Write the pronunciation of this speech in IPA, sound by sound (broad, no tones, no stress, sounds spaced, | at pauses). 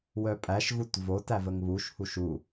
w œ pʼ æ ʃ ɣ u t v o t æ v ə ŋ β u ʃ h u ʃ u